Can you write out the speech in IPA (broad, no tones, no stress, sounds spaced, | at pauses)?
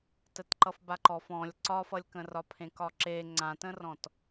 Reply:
t ə t ǃ ʌ f b a ǃ ɔ f ɔ̃ lʲ ǀ ɒ f ʌ lʲ k ə̃ r ɒ pʰ ẽ k ɒ ǁ e ŋ͡ǀ ã t ə̃ r ɔ̃ t